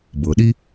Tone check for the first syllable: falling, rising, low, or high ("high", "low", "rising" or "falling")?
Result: low